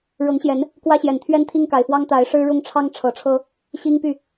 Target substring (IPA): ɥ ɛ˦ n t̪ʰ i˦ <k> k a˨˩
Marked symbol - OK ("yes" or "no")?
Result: no